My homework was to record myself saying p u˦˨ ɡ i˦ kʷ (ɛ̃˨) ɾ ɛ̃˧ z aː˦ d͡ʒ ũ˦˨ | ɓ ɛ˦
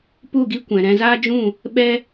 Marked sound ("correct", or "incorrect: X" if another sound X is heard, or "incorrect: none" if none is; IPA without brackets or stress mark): correct